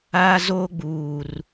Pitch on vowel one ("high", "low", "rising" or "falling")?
high